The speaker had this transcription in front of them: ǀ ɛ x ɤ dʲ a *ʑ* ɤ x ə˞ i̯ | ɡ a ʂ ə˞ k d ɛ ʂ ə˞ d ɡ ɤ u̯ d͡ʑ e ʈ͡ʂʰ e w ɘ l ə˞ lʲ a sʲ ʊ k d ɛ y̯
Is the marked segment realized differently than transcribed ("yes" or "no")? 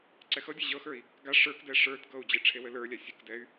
no